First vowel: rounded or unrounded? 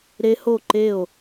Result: unrounded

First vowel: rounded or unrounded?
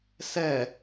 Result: unrounded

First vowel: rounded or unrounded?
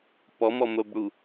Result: rounded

